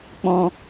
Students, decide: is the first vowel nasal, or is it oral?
nasal